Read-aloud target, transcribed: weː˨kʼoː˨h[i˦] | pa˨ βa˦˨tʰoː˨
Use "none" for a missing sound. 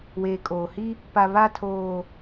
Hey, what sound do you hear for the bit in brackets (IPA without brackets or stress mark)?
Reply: i˦